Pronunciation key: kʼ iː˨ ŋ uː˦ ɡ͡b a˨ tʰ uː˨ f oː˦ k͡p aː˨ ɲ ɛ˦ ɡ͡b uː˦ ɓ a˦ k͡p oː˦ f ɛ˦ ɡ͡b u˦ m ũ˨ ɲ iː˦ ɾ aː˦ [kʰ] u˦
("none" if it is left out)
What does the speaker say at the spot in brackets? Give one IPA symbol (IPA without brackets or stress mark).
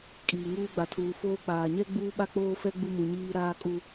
kʼ